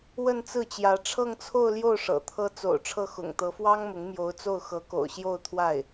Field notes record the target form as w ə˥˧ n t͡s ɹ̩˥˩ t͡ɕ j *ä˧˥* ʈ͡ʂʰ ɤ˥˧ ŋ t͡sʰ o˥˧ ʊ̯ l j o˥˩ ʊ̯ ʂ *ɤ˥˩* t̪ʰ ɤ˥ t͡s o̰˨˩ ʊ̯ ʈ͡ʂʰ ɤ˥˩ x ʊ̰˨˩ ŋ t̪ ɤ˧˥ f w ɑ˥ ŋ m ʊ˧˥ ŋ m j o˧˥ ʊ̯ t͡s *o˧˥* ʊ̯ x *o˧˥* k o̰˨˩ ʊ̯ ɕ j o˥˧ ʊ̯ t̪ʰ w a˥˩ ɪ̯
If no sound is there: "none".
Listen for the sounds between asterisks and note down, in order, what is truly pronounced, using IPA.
ä˧˥, ɤ̰˨˩, o˥˩, ɤ˧˥

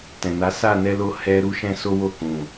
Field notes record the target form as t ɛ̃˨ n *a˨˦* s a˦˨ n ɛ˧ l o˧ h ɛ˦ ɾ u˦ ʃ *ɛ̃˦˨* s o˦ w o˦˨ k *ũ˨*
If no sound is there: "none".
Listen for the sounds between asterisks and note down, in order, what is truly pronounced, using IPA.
a˨˦, ɛ̃˦, ũ˨

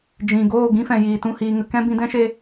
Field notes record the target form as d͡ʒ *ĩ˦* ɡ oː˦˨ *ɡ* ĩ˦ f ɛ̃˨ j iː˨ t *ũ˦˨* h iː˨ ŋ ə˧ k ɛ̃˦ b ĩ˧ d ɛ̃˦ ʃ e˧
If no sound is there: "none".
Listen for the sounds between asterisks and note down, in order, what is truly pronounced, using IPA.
ĩ˨, ɡ, ũ˦˨

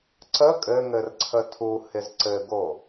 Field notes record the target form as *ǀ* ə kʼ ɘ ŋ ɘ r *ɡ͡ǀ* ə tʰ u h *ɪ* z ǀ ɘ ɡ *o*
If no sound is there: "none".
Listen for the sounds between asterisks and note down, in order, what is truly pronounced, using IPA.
ǀ, ǀʰ, ɪ, o

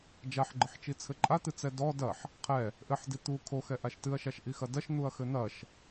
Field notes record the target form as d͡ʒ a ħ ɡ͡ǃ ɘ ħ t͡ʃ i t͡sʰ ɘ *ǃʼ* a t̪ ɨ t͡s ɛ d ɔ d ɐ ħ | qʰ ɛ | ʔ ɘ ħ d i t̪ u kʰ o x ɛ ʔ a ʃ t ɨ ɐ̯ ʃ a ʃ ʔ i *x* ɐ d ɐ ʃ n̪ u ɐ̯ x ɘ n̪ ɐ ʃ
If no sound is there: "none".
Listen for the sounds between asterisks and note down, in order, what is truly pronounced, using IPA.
ǃʼ, x

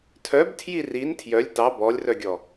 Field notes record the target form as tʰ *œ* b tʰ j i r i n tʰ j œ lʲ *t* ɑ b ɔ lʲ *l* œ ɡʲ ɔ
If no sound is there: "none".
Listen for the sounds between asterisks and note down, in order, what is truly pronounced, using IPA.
œ, t, r

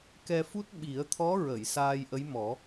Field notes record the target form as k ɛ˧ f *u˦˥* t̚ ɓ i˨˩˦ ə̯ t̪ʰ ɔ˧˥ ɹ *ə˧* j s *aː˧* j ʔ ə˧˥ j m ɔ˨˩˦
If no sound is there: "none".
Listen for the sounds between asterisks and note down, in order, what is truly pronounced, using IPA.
u˦˥, ə˨˩˨, aː˧

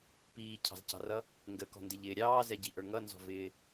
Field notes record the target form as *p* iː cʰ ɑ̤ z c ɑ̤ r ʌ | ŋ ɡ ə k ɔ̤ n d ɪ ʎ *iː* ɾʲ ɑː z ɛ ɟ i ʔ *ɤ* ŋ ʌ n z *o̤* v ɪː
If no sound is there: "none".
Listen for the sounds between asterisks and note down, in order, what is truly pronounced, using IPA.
p, ɪː, ə˞, ɔ̤

